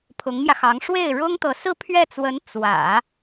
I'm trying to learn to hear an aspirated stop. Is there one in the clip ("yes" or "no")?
yes